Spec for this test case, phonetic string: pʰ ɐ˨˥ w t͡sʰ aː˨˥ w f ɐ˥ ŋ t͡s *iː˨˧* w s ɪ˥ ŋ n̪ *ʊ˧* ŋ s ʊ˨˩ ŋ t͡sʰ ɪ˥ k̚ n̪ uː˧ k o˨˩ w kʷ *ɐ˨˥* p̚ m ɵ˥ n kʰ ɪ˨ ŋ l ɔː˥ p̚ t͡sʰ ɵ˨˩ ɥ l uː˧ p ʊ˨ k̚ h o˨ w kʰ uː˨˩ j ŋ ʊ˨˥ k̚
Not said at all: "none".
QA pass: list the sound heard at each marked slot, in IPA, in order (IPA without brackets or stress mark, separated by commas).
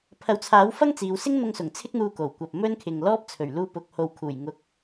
iː˨˧, ʊ˧, ɐ˨